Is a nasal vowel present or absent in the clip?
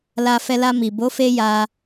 absent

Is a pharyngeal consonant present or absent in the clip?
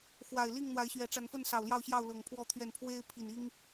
absent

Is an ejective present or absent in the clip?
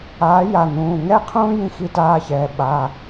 absent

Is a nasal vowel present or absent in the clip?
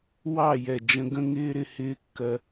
present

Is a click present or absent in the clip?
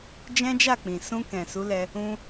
absent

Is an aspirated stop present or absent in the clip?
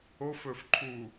present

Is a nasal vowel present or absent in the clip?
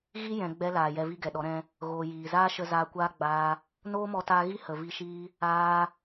present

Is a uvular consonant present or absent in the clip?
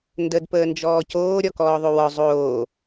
absent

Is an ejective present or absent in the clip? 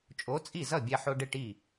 present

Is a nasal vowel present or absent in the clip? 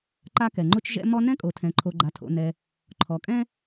present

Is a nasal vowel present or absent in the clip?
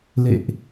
absent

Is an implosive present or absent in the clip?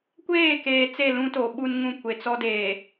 present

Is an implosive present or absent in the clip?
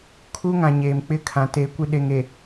present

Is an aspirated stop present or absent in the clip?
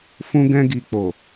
absent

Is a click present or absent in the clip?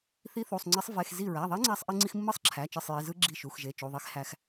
present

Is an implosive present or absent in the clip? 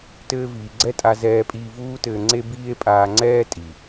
absent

